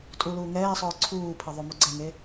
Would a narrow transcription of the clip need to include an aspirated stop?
yes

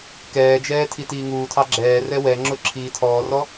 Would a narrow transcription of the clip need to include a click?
yes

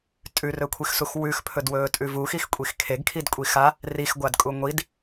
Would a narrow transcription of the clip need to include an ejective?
yes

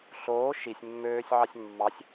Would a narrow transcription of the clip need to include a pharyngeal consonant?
yes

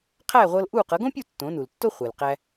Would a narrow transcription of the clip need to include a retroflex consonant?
no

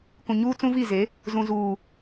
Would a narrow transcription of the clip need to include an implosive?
no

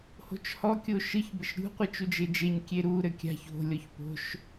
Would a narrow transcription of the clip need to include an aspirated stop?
no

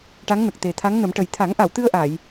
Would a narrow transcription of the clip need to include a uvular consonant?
no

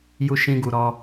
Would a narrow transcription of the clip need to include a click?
no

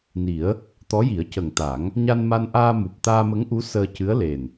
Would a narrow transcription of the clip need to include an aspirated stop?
no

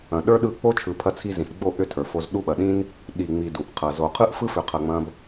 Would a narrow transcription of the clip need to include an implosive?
yes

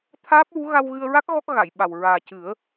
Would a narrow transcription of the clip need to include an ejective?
no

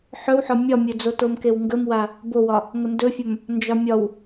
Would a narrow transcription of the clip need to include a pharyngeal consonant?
yes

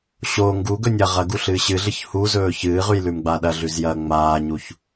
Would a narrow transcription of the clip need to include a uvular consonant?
yes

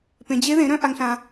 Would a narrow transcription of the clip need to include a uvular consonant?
no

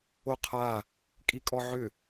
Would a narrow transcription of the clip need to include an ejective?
yes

